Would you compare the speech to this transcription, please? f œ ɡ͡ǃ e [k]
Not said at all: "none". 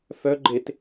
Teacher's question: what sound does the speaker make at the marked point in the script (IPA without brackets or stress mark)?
t